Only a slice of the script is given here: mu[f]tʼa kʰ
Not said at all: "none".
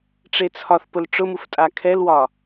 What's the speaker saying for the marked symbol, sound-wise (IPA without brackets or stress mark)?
f